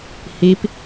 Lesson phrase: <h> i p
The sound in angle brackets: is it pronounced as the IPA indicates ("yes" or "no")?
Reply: yes